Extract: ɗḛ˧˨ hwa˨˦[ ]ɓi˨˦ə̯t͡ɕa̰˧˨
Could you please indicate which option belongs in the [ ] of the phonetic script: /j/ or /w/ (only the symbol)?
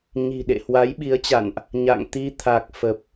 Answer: j